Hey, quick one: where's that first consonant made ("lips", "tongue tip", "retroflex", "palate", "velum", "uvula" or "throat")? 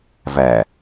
lips